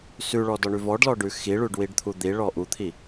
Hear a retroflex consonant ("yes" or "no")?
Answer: yes